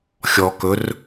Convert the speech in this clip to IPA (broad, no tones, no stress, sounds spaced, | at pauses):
xʲ ɔ k ɵ r